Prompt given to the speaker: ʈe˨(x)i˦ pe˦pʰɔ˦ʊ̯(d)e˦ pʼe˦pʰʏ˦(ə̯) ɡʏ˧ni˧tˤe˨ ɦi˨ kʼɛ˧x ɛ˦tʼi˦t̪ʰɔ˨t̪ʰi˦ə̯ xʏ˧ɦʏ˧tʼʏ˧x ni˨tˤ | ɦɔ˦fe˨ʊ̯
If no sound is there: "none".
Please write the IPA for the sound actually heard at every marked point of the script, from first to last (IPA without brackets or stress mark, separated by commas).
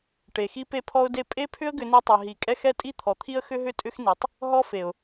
x, d, ə̯